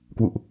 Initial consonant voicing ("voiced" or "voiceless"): voiceless